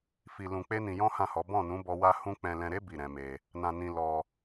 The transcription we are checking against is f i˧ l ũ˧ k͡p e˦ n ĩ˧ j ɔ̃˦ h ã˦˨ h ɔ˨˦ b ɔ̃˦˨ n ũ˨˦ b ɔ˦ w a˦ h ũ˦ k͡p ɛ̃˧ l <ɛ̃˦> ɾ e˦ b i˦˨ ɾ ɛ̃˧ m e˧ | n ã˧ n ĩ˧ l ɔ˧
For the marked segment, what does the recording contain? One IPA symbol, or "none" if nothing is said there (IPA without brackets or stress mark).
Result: ɛ̃˧